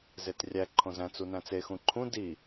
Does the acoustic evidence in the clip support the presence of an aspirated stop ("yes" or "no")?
yes